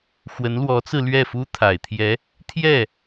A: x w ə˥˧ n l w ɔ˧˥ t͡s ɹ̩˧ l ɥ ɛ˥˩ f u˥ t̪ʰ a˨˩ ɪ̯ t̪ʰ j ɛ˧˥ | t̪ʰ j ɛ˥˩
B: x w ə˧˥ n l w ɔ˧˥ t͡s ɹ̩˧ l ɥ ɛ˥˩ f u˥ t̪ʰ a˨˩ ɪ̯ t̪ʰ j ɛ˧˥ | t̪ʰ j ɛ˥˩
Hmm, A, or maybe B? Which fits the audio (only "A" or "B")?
B